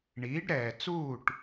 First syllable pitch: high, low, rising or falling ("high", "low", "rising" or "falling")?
rising